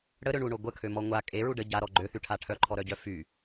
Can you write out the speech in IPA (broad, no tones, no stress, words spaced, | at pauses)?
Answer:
ɽəɾøɳuɳo ɡʷəkʰømɔ ŋʷa kʼeɹu ɖə ɟaɾɔ ɡ͡ǃøθyʈʰa ʈʰœǃʰɔɾœɟœ fy